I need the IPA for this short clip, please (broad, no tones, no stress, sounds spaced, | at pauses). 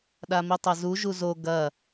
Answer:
ɗ a m i tˤ ɐ z u ʒ u z o ɡ ɐ